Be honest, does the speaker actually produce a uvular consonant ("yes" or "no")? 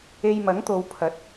no